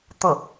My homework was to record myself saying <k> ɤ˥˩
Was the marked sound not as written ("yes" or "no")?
yes